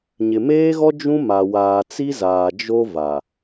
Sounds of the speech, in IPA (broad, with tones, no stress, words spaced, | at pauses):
ɲɪ˨meː˦ɣɔ˦ d͡ʒũ˦ma˨waː˨ t͡si˦zaː˨ d͡ʒo˦va˨